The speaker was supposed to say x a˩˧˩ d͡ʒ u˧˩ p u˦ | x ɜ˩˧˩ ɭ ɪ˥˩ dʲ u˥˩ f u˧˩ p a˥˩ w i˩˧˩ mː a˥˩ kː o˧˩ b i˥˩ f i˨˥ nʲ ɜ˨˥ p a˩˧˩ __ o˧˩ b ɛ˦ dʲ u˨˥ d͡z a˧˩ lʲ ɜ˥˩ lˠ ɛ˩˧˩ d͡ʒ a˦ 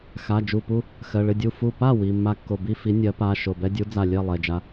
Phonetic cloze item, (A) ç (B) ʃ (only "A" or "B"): B